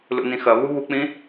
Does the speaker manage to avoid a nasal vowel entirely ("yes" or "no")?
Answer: no